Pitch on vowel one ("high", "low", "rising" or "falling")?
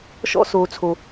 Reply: high